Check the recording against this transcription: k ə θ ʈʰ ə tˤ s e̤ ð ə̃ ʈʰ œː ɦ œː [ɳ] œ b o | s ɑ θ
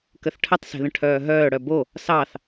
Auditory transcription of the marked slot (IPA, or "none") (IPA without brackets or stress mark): ɽ